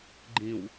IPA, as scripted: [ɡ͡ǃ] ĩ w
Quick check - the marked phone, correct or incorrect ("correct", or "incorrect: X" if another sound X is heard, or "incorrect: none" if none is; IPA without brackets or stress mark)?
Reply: correct